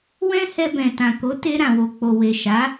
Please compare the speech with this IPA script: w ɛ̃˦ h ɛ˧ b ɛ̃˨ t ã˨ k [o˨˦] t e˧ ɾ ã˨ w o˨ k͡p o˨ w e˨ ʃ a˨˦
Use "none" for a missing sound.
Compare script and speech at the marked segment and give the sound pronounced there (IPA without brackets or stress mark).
o˨˦